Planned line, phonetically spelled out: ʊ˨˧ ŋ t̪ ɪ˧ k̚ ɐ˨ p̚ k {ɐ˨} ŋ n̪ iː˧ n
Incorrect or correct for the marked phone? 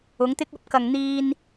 correct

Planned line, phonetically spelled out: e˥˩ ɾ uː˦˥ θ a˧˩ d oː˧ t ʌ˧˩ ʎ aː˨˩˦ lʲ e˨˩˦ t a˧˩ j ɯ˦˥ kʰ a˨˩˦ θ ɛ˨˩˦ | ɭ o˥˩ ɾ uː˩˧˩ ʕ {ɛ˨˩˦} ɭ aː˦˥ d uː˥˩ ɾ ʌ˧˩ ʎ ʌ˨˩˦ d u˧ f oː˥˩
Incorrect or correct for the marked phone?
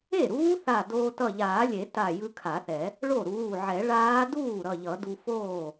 correct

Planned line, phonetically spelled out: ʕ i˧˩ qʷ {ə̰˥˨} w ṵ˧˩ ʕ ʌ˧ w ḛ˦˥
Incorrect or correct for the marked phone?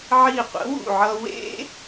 incorrect: ə̰˩˥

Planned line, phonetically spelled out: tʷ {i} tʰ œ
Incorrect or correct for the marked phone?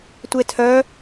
incorrect: e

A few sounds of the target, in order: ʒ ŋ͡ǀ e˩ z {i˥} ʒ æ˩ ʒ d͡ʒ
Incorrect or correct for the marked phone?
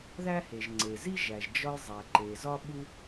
correct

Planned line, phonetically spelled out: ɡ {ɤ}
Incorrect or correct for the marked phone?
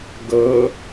correct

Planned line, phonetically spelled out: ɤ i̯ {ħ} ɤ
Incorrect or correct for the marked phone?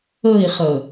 incorrect: χ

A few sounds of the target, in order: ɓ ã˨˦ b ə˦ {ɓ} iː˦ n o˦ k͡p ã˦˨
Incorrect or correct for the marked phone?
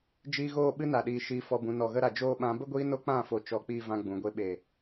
incorrect: ɡʷ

